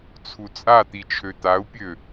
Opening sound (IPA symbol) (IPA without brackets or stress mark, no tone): t͡sʰ